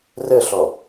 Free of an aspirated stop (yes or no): yes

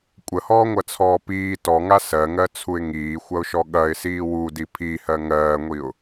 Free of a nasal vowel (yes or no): yes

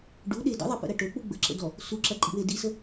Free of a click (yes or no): no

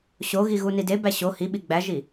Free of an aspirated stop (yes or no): yes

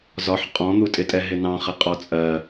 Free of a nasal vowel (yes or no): no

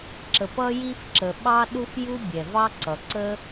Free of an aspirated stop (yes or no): yes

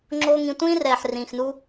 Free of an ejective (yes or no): yes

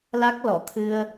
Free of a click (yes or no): yes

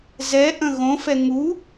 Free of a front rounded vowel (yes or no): yes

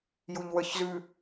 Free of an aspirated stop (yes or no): yes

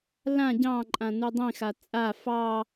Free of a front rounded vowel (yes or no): yes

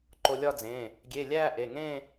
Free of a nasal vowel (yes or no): no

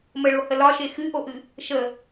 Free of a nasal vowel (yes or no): yes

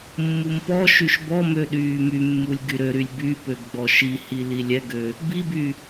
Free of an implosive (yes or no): no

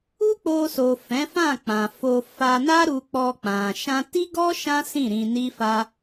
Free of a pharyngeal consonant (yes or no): yes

